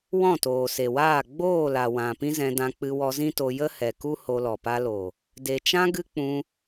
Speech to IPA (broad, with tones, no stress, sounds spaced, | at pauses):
w ɔ̃˦˨ t oː˨ s e˨ w aː˦˨ ɡ͡b oː˦˨ l a˨ w ã˨ p ĩ˦ z ɛ̃˧ d ã˧ k͡p ɨ˧ w ɔ˧ z ĩ˦ t o˧ j ə˦ h ɛ˨ k u˦ h o˧ l ɔ˨ p a˧ l o˨ | d e˨ t͡ʃ ã˦ ɡ ɨ˦ k͡p ũ˧